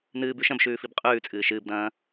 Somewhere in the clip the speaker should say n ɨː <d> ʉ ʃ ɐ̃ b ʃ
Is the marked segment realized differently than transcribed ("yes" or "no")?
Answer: yes